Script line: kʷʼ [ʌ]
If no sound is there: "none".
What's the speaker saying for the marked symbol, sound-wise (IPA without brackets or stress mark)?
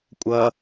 ʌ